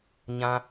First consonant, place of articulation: palatal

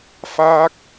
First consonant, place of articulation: labial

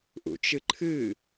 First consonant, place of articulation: glottal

